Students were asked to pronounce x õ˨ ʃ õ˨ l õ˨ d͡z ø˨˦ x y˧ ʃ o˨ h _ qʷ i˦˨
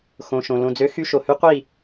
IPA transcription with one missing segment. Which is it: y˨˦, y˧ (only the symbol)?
y˧